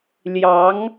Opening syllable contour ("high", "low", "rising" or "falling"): rising